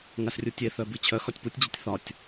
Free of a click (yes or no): yes